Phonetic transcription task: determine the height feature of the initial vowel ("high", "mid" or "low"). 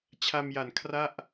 low